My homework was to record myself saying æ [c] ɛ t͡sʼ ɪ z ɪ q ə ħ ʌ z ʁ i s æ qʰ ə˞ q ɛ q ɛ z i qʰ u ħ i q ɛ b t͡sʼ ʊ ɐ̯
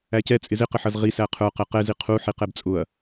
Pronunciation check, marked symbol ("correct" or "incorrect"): correct